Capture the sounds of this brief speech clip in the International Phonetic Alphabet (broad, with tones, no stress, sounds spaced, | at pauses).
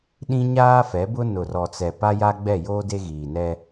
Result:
ɗ ĩ˦ ɲ aː˦ f ɛ˨˦ b ʊ˦ n ʊ˨ r ɔ˨ t͡s ɛ˨ p a˦ j a˦ ɡ͡b ɛ˦˨ j oː˦ d e˦ ɣ iː˨ n ɛ˦